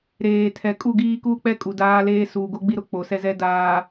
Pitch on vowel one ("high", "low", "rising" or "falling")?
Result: low